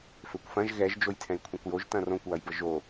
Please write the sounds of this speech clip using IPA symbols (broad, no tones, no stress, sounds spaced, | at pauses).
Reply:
f ø kʷ f ɐ̃ ʒ ɣ ɛ ʒ d͡ʒ o j tʰ ɛ̃ j kʷʰ ɛ̃ kʷ j o ʒ t ɐ̃ r õ kʷ w ɐ j b ə ʒ o